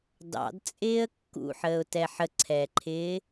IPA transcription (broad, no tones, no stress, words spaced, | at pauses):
dɑ̰dt͡sʼɪːə̯ kːṵħəːʊ̯tɛ ħəǀʰɛːǃʰɪː